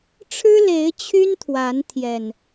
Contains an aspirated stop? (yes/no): yes